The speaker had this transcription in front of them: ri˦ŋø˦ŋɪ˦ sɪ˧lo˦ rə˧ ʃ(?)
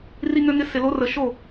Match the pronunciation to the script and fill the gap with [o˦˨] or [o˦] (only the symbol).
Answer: o˦˨